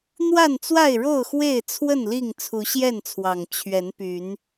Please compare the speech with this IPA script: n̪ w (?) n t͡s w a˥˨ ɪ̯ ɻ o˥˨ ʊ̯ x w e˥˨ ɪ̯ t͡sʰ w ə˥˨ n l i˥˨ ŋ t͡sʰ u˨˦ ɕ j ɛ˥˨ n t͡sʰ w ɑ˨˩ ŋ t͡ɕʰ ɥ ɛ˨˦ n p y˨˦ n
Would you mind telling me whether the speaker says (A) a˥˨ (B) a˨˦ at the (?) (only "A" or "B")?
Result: A